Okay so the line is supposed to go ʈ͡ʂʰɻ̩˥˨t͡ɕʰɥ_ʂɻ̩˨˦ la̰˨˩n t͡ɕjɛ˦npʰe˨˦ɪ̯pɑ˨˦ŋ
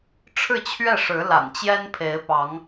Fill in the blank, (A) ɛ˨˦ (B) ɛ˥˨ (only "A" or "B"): B